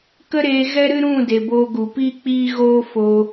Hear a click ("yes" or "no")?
no